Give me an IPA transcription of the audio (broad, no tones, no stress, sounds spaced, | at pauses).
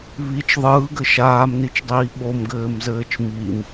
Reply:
β i t͡ʃ ðˤ ɯː ɡ ɘ ʃ aː m n i t͡ʃ dˤ iː ɓ o m ɡ ɘː m z ɘː t͡ʃ m i m